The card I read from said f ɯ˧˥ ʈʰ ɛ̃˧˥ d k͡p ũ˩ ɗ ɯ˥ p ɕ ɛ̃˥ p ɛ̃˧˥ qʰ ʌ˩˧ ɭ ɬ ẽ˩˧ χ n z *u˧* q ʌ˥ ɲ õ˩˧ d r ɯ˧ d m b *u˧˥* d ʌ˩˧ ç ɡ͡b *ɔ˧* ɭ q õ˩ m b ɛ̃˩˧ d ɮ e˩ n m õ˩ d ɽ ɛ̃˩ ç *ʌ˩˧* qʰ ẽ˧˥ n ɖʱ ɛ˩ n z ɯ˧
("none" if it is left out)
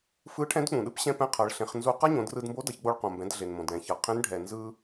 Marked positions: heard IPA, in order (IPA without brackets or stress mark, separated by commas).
u˧, o˧˥, o˧, ʌ˩˧